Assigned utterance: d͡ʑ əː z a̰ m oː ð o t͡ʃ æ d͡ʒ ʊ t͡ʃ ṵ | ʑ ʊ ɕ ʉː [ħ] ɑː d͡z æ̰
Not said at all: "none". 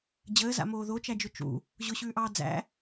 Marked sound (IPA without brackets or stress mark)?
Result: ʔ